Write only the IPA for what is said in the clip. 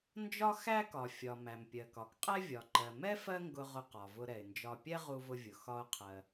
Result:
nd͡ʒɒ˥xæ˥ kɒ˩ fʲɒ˩ mæ˩mpʲɜ˩kɒ˩k qʼɛ˥vʲɒ˩ǃɜ˩ mɛ˥ fɜ˥ŋɡʊ˧ ʁʊ˧qɒ˩vʊ˧ ɾɛ˩ɪ̯nd͡ʒɒ˧ pʲɛ˥ʁu˧vʊ˧vʲʊ˩ xɒ˧ʊ̯qʰɜ˩

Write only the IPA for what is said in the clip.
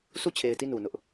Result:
sʰu˦˨t͡ɕʰe˨ɪ̯ti˦˨ nu˨nʊ˦ʔ

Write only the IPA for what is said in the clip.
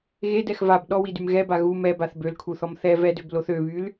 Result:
ɣedɛx vab ɗɔwidym ɣɛba ɣu mɛbaθ bølkʰuθɔm θɛ vɛdøbloθ øβyl

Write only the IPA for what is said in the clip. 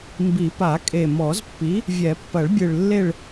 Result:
mbi˨˩˦pa˨˩˦kʼe˨˩ mɔ˨˩˦zpːi˩˥ | vʲɛ˨˩˦pːɐ˨˩˦ɭbʲɨ˨˩ɭlːe˦˨ɭ

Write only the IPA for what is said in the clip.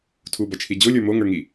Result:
tʰubɐt͡ʃʰi d͡ʑolʲə˞ moŋə˞ŋi

